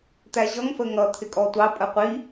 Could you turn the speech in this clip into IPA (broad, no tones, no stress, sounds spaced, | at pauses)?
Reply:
t̪ æ ʑ ʌ ŋ f ə ŋ ʌ t̪ʰ ɪ kʼ ɔ tʷ ɑ pʼ ə qʷ i